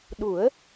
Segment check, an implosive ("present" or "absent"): present